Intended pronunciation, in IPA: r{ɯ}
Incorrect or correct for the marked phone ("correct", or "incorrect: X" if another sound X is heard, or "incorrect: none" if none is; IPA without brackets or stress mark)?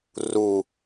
incorrect: u